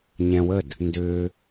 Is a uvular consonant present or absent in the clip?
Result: absent